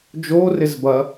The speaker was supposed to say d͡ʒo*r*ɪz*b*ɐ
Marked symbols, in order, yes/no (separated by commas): yes, yes